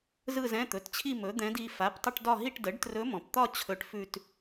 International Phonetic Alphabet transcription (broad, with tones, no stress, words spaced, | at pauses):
zɯ˥˧zɛ̃˧˥˧t̪ɵ˩˧˩tt͡ɕʰi˥˧ mɵ˩˥ d̪ɛ̃˧˥di˩˧˩ fa˩˧˩ptˤə˥˧ʈdɒ˥˧ɦi˥˧ʈ də˩˥ɖtrɵ˧˥mɔ̃˩pt̪ɒ˥˧ t͡ɕʰɵ˧˥˧ʈfʉ˥˧t